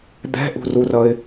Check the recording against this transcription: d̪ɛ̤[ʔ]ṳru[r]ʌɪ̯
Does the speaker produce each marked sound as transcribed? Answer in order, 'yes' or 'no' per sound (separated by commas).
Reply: yes, yes